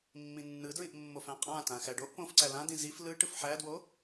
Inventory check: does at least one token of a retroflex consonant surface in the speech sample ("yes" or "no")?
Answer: yes